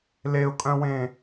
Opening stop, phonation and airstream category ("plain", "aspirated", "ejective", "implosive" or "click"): ejective